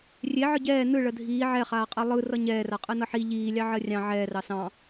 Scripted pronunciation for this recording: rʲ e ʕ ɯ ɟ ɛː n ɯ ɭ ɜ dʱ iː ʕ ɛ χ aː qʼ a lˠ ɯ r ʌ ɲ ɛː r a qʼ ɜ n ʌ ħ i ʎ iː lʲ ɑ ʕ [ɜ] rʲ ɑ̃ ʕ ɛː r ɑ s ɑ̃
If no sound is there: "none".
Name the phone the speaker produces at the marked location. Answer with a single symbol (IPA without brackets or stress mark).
ɜ